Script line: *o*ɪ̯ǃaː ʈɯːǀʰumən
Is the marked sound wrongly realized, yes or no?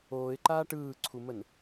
yes